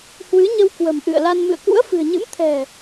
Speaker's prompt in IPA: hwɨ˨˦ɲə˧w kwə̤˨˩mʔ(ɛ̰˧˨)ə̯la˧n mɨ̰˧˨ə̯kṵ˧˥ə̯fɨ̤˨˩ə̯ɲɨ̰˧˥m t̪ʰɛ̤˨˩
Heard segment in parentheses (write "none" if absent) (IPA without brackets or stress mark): ɨ̰˧˨